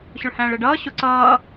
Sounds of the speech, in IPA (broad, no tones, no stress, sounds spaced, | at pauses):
ɕ ʊ ɭ h æ̃ː ɭ ɛ ɖ ʌː ɕ ʊ ǀ ʌː